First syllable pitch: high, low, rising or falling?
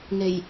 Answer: low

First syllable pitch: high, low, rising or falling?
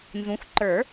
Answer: rising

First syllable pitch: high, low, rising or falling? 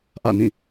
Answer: falling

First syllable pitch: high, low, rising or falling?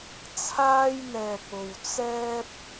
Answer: high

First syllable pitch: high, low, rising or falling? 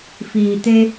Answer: low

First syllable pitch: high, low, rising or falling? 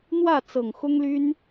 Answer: falling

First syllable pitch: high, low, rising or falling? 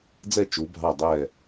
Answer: falling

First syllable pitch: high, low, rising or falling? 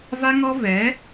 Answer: high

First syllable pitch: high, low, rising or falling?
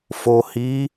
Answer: low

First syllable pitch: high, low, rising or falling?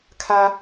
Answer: high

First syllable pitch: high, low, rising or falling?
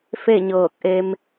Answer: falling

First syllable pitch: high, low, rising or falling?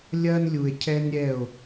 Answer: high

